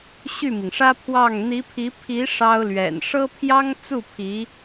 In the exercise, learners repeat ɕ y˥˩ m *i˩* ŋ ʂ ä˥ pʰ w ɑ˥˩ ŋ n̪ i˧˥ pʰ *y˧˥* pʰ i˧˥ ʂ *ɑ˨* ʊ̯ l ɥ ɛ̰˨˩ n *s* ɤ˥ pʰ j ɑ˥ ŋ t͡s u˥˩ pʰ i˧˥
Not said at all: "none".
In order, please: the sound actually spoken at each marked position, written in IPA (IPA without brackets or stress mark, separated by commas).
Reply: i˩, i˧˥, ɑ˥, ʂ